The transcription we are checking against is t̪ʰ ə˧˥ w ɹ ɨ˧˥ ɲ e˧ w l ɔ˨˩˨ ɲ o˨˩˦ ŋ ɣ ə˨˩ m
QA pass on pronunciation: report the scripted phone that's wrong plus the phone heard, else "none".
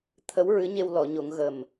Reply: none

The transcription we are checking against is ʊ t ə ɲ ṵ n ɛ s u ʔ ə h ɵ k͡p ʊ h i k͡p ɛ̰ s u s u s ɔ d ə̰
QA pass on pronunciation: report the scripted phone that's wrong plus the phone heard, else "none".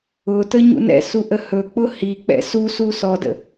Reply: ɛ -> ɛ̰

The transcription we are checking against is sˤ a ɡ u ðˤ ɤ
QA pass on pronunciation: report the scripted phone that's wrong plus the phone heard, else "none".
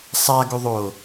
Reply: ɤ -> o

